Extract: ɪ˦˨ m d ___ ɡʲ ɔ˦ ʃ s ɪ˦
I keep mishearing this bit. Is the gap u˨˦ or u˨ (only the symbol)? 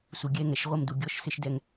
u˨